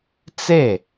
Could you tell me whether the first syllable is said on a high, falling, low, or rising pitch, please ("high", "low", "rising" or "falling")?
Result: falling